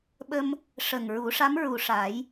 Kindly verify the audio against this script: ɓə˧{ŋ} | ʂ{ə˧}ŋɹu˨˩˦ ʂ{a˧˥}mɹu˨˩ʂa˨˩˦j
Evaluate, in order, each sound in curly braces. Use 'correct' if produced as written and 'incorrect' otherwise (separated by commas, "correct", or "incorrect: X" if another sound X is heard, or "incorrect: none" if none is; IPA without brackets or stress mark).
incorrect: m, incorrect: ə˨˩, correct